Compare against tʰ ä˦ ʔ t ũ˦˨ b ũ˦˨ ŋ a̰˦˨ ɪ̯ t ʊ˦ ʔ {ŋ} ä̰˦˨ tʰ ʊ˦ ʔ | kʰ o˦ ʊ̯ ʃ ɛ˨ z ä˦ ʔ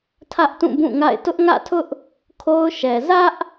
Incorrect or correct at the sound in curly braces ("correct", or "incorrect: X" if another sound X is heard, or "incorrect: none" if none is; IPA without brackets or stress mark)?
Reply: correct